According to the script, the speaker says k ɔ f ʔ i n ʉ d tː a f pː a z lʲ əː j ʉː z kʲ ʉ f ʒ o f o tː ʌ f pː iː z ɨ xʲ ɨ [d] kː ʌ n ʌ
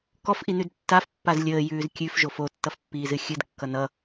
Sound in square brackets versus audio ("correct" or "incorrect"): correct